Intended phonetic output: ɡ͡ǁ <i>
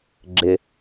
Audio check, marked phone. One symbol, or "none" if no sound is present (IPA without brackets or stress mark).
ɪ